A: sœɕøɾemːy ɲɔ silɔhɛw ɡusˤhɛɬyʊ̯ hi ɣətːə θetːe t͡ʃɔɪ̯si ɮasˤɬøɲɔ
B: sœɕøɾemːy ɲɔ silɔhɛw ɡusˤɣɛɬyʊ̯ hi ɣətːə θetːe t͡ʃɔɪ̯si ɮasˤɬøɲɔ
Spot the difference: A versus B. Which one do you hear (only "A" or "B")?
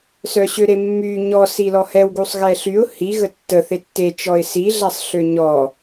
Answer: B